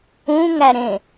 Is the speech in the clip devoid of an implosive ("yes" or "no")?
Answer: yes